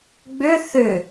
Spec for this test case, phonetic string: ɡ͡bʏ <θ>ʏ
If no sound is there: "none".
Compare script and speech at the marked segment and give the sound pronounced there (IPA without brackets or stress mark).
θ